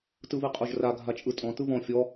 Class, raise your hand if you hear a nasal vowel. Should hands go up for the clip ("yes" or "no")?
yes